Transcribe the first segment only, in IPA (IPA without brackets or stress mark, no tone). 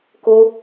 k